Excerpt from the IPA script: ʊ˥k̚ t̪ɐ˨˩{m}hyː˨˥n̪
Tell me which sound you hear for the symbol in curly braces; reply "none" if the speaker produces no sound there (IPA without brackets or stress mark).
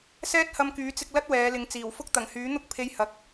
ŋ